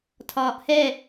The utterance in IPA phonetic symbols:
tʰ ɒː ʔ h ɛ

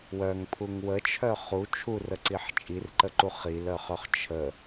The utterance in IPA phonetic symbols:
w œ ŋ pʰ u ŋ w ə t͡ʃʰ œ χ u t͡ʃʰ u r ə ǀ i ħ t͡ʃʼ i r ǃ ə ǃ u χ i l œ χ œ χ t͡ʃʰ ə

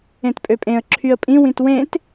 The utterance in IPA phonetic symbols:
ẽ t pʼ ø pʼ ẽ ə̯ ǁʰ y ə̯ pʼ ĩ w ĩ t w ẽ t

